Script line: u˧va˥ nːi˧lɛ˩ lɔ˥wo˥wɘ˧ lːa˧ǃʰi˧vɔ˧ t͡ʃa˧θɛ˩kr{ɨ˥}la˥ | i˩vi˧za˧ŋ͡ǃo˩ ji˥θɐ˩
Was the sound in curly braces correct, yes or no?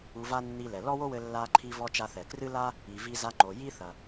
yes